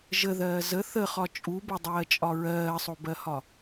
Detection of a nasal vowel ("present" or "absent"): absent